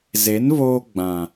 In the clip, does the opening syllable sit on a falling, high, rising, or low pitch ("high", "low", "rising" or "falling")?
rising